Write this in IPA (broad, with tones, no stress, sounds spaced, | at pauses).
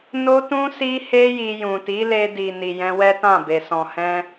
n o˧ t ũ˧ s i˧ h e˧ j i˧ j ũ˨ t i˨˦ l e˧ d i˨ n i˨ j ɛ̃˧ w ɛ˦ t ã˦˨ b e˨ s ɔ̃˨ h ɛ̃˧